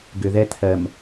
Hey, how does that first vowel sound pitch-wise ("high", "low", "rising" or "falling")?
low